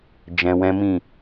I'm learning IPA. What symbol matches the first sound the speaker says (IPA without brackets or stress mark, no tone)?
d͡ʒ